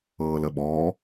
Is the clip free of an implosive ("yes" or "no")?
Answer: no